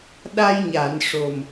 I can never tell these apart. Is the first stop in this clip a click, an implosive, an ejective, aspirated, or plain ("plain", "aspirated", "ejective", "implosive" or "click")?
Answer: implosive